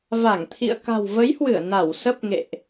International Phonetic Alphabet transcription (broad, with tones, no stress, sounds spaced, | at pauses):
v a˧˩ ŋ t̪ʰ ḭ˧˨ ə̯ k a̤˨˩ w v ə˨˦ j h w ɨ˧˩ ə̯ n a˧˩ w s ə˦˥ p̚ ŋ ḛ˧˨ ʔ